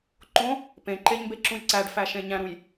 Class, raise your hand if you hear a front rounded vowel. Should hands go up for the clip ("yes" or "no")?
no